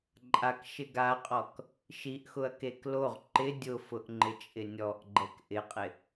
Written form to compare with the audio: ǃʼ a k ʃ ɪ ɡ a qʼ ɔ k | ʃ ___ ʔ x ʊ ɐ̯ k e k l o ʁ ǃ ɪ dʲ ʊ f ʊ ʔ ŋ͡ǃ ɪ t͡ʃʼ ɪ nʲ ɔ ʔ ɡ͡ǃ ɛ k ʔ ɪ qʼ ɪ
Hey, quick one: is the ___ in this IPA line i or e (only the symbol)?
i